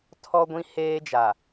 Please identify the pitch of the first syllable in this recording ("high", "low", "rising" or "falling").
high